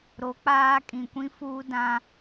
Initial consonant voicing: voiced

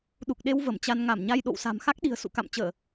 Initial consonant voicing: voiced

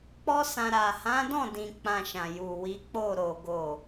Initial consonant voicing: voiceless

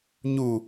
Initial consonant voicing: voiced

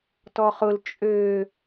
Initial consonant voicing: voiceless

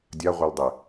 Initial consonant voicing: voiced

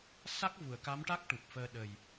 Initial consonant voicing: voiceless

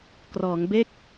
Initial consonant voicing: voiceless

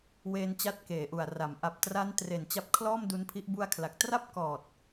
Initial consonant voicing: voiced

